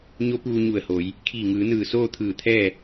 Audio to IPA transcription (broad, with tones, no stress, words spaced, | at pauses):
ɲo˧˥puː˧ɲu˧˩ə̯ho˩˧j | kʰiː˧˩ŋɯː˩˧nɯː˧˩ soː˥˨t̪ʰɯː˧˩t̪ʰɛː˥˨